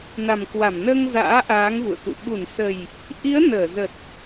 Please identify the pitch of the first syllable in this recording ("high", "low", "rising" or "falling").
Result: low